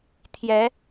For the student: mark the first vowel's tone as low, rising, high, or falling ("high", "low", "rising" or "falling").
rising